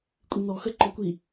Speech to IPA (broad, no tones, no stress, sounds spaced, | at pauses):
kʷʼ i n ɔ x ə ǃ ɔ kʷ i